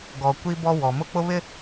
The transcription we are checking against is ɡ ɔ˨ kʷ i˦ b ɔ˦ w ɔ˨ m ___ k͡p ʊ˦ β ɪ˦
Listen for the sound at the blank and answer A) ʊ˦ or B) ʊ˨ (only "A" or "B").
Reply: A